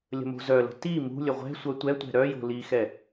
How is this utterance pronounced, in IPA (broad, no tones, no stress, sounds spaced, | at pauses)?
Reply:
lʲ ə̤ m o̤ z œ l ə̤ t i m ṳ lʲ ə ʁʷ ɛ̤ sʷ œ tʷ ɛ tʷ ɛ̤ ɾ œ j o̤ l i x ɛ